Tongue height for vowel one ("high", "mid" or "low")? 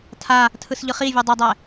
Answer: low